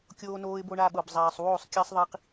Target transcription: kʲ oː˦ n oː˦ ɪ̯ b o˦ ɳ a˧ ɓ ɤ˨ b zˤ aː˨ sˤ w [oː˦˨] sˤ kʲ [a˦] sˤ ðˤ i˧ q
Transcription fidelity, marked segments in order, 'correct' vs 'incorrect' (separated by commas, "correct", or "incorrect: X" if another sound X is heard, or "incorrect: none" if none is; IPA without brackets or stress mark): correct, correct